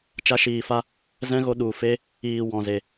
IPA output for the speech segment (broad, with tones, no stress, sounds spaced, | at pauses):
t͡ʃ a˧ ʃ iː˨ f a˧ | z ɛ̃˦ ɣ o˧ ɗ u˨ f e˦ | iː˨ w ɔ̃˨ z e˨